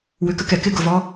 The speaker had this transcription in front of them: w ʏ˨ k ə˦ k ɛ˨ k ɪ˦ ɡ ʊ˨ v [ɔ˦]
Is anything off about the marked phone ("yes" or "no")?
no